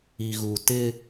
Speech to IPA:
i˨ ɣ u˨ t ɪ˦

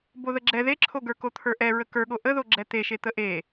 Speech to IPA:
b o ð ə ɡ͡ǁ ɛ ð e ǁʰ o ɡ ə˞ k o t̪ʰ ə˞ ʔ ɛ ɹ ə k ə˞ ɠ o ʔ ə ð o ɡ͡ǁ ɛ t̪ e ʃ e t̪ ə ʔ e

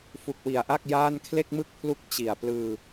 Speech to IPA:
f u˨˩ k̚ w i˨˩ a̯ ʔ a˥˩ k̚ j aː˥˩ n kʰ l e˥˩ k̚ m ɯ˥˩ k̚ pʰ l u˥˩ k̚ t͡ɕ i˨˩ a̯ p l ɯː˧

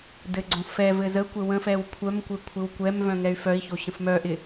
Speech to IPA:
d ɘ ɡ͡ǀ õ f ɛ v ɘ z ə kʷ ɘ w ə̃ f ɛ w kʷʰ œ m kʷ ɘ kʷʰ ɪ w kʷ ɛ m v œ̃ ŋ ɛ y̯ f œ i̯ ç o ɕ ə̃ f m œ ʔ ɪ

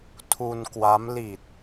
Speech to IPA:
tʰ u˧ n k w a˦˥ m l i˨˩ t̚

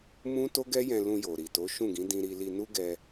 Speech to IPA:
m ũ˦ t o˦ ɡ ɛ˦ j ɛ̃˧ l ũ˧ j o˨ ɾ i˨ t o˨˦ ʃ ũ˦˨ ɡ ĩ˨˦ d ĩ˧ ɾ i˧ l i˧ n u˦ ɡ ɛ˧

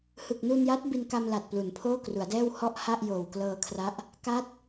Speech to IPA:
h ɯ˨˩ k̚ n u˧ n j a˦˥ t̚ b i˧ n k a˧ m l a˨˩ t̚ p l u˩˦ n pʰ oː˥˩ k r u˩˦ a̯ d ɛː˥˩ w h ɔ˥˩ ʔ h a˥˩ ʔ j oː˨˩ w k l ɤː˧ kʰ r a˦˥ ʔ | k a˦˥ t̚

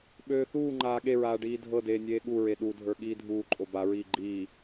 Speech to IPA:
ɓ øː θ uː ŋ͡ǃ aː ɠ e ɹ aː ɖ iː dʱ ɤ d eː nʲ eː ɠ u ɹ e ɗ u dʱ ə˞ ɠ iː dʱ uː ǃʼ o b a ɹ iː ɡ͡ǃ iː

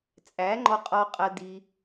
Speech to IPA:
t͡sʼ æ˨˦ ŋ͡ǃ ɔ˧ qʼ ɔ˧ qʼ ɐ˧ d i˧

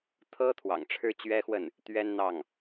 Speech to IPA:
t̪ʰ ɤ˥ t̪ʰ w ɑ̰˨˩ ŋ ʈ͡ʂʰ ɻ̩˥ t͡ɕ ɥ ɛ˥ x w ə˥˩ n | t̪ ɥ ɛ˥ n n̪ ɑ˥˩ ŋ

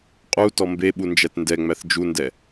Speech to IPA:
qʼ u t ɔ m b e ɓ u n d͡ʒ æ t n d ɛ ŋ͡m æ θ d͡ʒ u n d ɛ

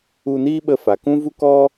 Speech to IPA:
u˧ n iː˦ ɓ ə˧ f a˨ k ũ˦ v u˦ k ɔ˦

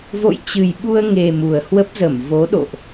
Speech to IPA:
v o̰˧˨ j t͡ɕ ɨ˨˩ j ɓ u˧ ə̯ ŋ e˨˩ m u˨˩ ə̯ h w ə˦˥ p̚ z ə˧˩ m v o˨˦ ɗ o̰˧˨ ʔ

